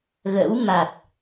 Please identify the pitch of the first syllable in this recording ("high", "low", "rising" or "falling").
rising